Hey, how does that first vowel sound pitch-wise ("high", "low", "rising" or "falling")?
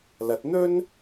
rising